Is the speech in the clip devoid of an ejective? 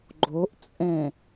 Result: no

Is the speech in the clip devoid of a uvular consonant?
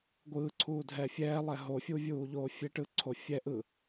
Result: yes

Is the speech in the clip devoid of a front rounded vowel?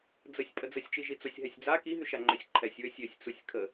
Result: no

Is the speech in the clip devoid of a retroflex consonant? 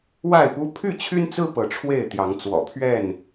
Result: no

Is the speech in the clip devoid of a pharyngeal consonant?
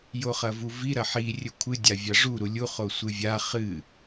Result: no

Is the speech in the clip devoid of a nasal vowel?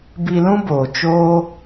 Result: no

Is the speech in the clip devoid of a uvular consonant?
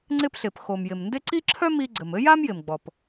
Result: yes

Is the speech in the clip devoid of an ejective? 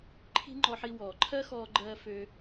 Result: yes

